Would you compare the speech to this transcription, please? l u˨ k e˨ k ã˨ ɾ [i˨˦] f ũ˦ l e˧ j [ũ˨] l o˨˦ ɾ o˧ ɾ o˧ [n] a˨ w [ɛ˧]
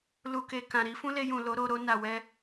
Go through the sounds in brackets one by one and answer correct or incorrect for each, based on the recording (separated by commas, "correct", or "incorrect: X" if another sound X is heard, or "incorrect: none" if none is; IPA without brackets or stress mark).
correct, correct, correct, correct